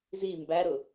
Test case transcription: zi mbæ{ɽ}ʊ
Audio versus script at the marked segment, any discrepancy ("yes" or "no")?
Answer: yes